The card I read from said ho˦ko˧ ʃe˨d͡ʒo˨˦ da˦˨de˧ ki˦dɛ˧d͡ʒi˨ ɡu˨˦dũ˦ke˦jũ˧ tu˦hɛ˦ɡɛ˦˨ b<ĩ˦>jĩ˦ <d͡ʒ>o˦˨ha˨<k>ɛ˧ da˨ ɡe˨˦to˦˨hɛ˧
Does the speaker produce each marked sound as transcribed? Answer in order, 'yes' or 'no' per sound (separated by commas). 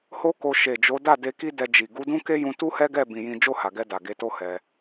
no, yes, no